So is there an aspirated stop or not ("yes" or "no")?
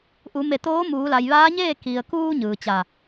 no